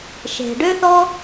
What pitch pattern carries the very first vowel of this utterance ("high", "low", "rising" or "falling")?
low